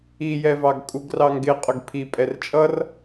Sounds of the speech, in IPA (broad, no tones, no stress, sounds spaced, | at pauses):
i j ɛ v ɑ ɡ kʼ u ɡ r ɑ ŋ ɡ ɪ qʼ ʊ ɡ pʰ i pʼ ɛ r t͡ʃʼ ʌ r